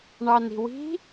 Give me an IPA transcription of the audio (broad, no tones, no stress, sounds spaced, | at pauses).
ɳ ɑ n i̤ w i̤